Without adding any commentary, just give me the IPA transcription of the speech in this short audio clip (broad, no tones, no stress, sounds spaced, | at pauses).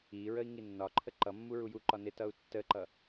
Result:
i ɹ ə i̯ ŋ i nː ɒ ǃʰ ə ǃ ʌ mː u ɹ u j u ǃ ɒ n ɪ t ʌ u̯ tː ə ǃ ʌ